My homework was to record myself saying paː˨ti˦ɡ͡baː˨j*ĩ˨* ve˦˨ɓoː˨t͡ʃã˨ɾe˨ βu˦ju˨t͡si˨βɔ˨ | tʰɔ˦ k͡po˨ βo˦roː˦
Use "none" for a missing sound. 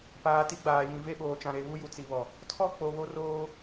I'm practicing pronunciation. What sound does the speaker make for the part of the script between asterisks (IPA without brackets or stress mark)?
ĩ˨